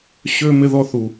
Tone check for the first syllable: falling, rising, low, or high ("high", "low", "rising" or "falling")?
high